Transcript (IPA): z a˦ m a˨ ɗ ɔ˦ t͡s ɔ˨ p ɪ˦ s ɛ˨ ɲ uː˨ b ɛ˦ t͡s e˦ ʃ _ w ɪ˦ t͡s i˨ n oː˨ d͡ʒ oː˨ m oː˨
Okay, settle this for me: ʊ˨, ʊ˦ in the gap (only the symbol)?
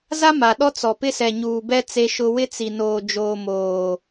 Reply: ʊ˦